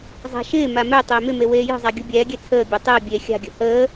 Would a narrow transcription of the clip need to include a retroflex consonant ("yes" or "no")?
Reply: no